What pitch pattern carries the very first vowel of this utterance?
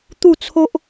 falling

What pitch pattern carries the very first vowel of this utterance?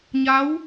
rising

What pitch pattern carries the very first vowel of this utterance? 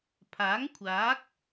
rising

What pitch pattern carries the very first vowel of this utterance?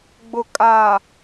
low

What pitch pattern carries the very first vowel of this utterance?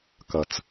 low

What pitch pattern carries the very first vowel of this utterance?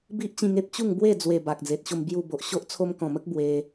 high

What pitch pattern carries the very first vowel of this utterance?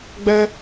high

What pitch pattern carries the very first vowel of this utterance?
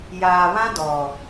low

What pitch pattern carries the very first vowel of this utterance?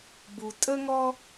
low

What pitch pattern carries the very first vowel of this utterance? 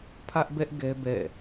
high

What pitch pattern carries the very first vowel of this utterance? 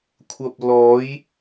low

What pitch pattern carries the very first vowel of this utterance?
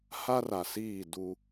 high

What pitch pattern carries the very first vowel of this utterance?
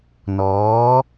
rising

